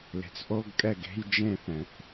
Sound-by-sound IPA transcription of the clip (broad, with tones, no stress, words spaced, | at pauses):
le̤˩t͡sʔo˧˥˧ɡkʼɛ˥˩ɡe̤˧˥˧j d͡ʒẽ˥˧θɛ̃˩θ